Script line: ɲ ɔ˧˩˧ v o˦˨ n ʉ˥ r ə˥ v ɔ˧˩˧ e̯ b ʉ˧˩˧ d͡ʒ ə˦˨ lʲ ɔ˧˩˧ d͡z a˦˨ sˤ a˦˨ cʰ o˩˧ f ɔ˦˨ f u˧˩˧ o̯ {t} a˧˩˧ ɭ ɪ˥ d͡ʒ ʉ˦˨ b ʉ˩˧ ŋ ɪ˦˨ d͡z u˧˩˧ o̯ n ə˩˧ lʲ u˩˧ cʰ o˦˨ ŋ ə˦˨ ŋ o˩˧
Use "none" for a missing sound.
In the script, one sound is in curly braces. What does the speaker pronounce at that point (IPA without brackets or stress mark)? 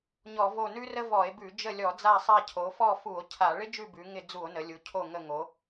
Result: cʰ